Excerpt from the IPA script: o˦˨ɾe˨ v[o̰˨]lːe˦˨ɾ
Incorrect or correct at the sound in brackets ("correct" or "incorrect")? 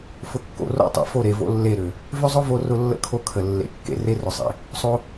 incorrect